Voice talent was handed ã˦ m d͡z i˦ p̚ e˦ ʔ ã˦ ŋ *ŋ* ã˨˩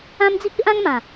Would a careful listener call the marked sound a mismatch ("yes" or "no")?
yes